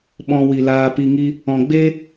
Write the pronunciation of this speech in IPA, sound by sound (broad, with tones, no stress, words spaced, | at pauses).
ɓɔ̃˧ wi˨laː˧pi˧ŋi˦ | ɔ̃˧ ɡ͡be˦